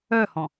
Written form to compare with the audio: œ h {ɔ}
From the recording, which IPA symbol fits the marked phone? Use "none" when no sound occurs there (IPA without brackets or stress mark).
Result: ɔ̃